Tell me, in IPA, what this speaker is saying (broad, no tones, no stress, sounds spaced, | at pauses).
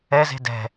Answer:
ɛ z e̤ d ɛ̤